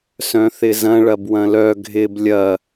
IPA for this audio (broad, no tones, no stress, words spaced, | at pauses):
sœ̃θɪzɐ̃ ɭɐbwɐ̃lœ ɡʱɪb lʲɐ